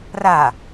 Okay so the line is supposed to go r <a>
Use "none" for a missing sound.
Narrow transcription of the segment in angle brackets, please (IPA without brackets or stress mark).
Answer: a